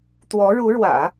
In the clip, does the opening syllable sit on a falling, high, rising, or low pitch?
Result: rising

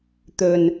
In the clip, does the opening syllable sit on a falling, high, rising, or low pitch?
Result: low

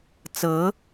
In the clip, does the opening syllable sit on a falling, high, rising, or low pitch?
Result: rising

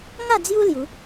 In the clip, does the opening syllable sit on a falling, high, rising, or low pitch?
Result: falling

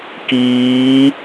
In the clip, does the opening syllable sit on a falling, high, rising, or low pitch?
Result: rising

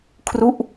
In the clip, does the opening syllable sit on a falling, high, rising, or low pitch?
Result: falling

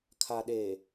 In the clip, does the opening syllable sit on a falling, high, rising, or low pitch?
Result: low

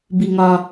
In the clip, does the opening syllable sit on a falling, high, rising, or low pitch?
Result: low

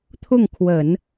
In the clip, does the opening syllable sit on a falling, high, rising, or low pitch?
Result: falling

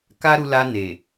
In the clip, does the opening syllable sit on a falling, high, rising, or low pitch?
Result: high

